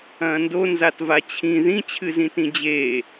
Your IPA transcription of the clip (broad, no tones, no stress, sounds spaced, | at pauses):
ɐ̃ː n d o n z a t v a t͡ɕʰ ĩ ð ĩ t͡ɕʰ ɨ z ĩ t ĩ d͡ʑ eː